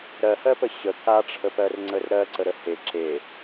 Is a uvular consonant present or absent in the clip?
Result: absent